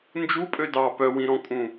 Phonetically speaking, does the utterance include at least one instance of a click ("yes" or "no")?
no